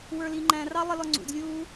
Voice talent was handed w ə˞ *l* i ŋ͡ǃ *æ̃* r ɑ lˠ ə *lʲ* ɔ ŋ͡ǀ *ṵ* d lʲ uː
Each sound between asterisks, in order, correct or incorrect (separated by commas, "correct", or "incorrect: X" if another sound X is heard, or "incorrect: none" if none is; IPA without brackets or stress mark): correct, correct, incorrect: l, correct